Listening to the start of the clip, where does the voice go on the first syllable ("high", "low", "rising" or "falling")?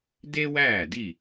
high